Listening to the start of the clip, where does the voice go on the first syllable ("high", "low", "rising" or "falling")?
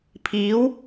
rising